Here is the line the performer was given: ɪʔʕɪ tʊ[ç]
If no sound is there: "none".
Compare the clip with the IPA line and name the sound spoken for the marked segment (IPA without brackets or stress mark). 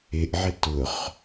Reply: χ